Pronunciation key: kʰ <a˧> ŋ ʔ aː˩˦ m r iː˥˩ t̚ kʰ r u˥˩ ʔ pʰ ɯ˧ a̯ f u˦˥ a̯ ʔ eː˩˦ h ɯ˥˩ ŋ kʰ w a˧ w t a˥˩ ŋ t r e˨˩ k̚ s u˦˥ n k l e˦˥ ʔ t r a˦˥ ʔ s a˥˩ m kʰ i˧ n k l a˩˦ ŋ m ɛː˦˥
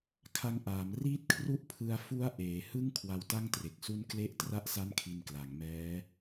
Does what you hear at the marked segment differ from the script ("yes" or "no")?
no